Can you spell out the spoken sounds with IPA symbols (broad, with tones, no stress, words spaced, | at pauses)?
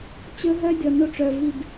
t͡ɕɵ˦ɦœ˦dʲɔ˨ no˦ʈ͡ʂœ˨vi˦˨b